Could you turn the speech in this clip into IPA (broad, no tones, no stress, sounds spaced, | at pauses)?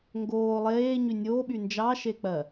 ŋ ɡ oː lˠ eː ɲ y nʲ oː ɓ y n d͡ʒ ɑ ʃ e k͡p ɜ